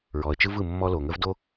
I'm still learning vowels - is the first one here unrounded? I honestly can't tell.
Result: no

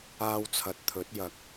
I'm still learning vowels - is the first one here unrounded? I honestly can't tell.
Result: yes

